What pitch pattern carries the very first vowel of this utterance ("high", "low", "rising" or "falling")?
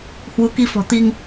rising